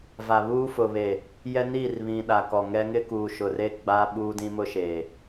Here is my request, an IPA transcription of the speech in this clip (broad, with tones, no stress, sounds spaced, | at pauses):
v a˨ β uː˦ f ʊ˨ β e˨ | j ɛ˦ n iː˦˨ r β ĩ˨ ɗ a˨ k ɔ˨ ŋ ɛ˦ ŋ ɪ˦ k uː˨ ʃ ʊ˨ r e˦ ɡ͡b a˦ ɓ uː˦ d ĩ˦ m ʊ˦ ʃ eː˨